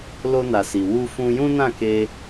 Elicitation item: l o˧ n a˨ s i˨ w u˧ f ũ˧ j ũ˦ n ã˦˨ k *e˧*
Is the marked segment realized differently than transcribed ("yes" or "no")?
no